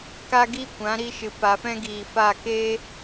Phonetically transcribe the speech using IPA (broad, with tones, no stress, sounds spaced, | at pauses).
k a˦ ɡ i˦ kʷ ã˨˦ ɾ i˧ ʃ ɨ˨ p a˨ f ɛ̃˦ ɡ iː˨ f a˦˨ k e˦